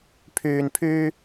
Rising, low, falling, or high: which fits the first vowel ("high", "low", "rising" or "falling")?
low